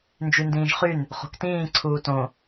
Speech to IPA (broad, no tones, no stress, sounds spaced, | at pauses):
n d͡ʒ y n d ĩː ʒ χ y n | χ o̤ k t ĩː ǀʰ uː t õ